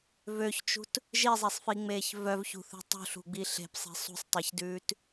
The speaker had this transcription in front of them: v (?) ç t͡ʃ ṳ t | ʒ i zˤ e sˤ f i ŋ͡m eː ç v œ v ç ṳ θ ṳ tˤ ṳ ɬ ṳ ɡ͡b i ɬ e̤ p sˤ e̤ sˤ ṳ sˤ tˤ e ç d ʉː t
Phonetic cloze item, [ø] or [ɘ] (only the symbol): ø